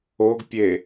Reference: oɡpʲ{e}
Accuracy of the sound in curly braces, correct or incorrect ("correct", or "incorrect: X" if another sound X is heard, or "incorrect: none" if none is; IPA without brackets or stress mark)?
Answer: correct